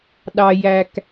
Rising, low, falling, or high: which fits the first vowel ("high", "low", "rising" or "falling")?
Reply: low